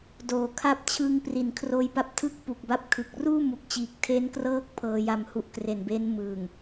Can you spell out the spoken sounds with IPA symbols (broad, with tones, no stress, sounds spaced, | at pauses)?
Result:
d oː˩˦ kʰ a˦˥ p̚ t͡ɕʰ ɯ˧ ŋ p r i˨˩ n kʰ r oː˧ j p a˦˥ p̚ tʰ ɯ˥˩ k̚ p u˨˩ k̚ b a˥˩ p̚ kʰ ɯ˨˩ k̚ r uː˥˩ m u˨˩ k̚ t͡ɕ iː˨˩ k̚ tʰ e˦˥ n k r ɤː˦˥ k̚ pʰ ɤː˧ j a˧ m h u˦˥ ʔ k r e˨˩ n b e˦˥ n m ɯː˨˩ ŋ